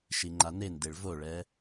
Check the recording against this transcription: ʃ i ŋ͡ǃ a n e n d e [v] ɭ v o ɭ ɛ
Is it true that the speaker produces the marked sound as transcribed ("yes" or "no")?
no